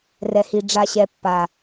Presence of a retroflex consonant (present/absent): present